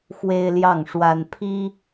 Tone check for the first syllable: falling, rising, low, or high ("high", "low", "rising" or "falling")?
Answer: high